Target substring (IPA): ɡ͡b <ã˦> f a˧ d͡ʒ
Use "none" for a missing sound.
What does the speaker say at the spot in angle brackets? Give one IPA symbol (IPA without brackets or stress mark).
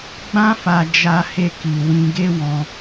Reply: ã˦